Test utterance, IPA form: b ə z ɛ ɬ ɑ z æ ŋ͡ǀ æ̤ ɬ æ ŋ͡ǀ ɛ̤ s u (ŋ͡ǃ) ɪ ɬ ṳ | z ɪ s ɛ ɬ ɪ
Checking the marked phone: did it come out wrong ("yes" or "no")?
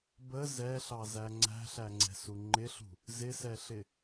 no